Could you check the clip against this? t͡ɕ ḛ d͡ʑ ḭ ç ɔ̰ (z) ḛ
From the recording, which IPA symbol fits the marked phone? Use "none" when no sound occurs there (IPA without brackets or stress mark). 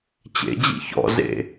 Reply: z